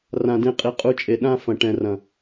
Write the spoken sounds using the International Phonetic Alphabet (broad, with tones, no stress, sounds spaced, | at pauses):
r ã˨ d ẽ˧ qʼ i˨ qʼ u˧ t͡ʃʼ e˨ ɗ ã˦ f ɐ̃˨ ʈ ɛ̃˨ r ɐ̃˨